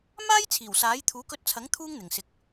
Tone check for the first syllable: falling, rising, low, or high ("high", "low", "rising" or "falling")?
high